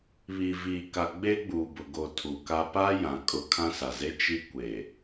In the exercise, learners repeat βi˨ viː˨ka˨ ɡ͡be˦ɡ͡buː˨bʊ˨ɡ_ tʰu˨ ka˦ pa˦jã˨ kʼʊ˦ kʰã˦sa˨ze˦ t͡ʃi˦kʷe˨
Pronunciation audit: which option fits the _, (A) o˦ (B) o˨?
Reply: B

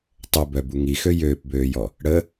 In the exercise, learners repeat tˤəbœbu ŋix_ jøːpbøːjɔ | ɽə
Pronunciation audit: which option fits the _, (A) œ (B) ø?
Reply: B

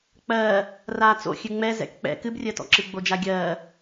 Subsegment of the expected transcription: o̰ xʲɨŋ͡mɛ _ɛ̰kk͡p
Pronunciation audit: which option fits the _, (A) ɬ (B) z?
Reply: B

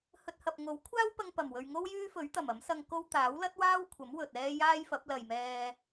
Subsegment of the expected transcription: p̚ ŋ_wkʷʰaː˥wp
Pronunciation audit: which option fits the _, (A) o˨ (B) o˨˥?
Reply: B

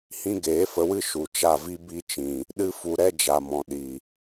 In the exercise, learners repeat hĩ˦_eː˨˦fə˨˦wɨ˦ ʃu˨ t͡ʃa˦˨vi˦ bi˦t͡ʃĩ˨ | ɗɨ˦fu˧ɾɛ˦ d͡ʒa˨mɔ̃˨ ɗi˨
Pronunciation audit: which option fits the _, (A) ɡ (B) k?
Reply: A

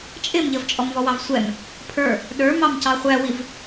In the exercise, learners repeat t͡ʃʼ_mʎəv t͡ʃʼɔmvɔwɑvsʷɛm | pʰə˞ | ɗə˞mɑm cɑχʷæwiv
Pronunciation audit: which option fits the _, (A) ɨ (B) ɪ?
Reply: B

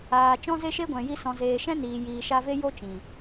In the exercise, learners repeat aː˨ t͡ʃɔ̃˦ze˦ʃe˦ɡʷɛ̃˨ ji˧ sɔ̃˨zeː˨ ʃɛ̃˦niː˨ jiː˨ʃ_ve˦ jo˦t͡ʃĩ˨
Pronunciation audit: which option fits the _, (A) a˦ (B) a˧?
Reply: B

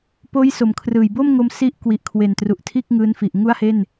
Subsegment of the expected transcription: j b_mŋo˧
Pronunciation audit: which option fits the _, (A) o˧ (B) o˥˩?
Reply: B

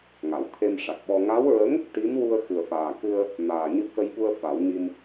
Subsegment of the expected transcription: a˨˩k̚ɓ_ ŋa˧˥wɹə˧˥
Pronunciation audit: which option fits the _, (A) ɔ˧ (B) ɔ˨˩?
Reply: A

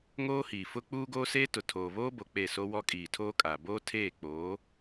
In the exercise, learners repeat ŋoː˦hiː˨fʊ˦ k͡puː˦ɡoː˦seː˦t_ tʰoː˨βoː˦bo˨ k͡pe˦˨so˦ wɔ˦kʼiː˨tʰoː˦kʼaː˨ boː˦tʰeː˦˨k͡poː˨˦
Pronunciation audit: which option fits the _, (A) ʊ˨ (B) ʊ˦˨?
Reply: A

